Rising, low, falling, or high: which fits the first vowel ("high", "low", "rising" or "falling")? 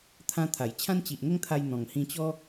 high